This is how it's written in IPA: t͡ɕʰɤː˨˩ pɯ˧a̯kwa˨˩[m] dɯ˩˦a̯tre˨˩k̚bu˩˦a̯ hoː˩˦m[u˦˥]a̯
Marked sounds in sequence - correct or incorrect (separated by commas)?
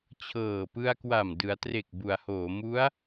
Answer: correct, correct